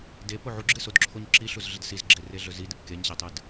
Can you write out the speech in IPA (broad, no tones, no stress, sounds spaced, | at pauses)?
d e p o ʕ u ɡ͡ǁ ɨ s o d ǁʰ o ɲ ǁ i ɬ u z ɮ ɪ d s i z ɡ͡ǁ e r e ɮ ɵ z i d ɨ p k e ɲ ɕ e tˤ ɨ d